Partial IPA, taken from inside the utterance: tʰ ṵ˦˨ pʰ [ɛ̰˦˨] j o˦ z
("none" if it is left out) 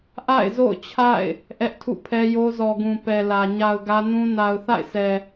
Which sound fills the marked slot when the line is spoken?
ɛ˦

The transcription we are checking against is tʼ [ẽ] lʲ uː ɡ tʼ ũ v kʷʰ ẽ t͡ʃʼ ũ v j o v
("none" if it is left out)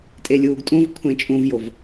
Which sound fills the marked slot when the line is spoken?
e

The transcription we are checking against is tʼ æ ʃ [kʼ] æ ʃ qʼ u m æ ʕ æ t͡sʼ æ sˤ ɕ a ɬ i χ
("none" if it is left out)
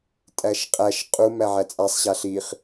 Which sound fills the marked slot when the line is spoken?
qʼ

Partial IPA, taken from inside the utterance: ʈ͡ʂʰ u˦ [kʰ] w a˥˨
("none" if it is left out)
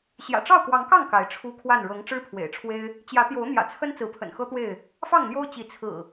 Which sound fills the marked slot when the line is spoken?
kʰ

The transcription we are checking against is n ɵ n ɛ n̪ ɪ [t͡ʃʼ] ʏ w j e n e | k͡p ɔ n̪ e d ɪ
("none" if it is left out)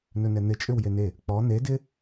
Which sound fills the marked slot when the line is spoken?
t͡ʃʼ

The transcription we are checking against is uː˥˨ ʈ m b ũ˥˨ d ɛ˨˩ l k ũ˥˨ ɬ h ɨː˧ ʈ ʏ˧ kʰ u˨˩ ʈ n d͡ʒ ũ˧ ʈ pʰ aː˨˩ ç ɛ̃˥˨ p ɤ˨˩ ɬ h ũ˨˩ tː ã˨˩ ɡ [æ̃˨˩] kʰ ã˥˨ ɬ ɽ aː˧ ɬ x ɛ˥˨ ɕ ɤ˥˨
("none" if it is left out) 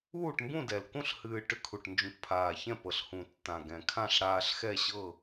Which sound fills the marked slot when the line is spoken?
ɛ̃˨˩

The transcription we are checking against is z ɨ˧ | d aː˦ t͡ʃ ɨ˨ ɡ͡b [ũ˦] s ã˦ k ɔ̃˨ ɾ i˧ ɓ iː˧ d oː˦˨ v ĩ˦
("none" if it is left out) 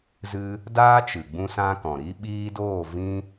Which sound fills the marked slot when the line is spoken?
ũ˦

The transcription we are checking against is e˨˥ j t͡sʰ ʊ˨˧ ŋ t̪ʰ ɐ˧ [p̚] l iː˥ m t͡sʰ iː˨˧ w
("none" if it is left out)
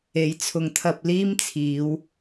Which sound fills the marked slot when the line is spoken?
p̚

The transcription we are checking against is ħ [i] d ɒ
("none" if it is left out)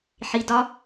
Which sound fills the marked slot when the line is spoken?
i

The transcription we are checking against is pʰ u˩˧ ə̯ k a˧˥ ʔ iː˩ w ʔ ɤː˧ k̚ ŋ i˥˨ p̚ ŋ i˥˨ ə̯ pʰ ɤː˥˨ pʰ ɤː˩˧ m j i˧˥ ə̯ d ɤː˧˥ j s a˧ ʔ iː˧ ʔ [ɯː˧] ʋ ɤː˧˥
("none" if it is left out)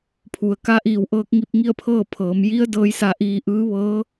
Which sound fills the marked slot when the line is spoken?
ɯː˧˥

